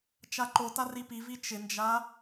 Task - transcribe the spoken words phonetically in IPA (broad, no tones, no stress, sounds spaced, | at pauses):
t͡ʃ a ǃ o t a r i p i v i t͡ʃ ɪ n d͡ʒ a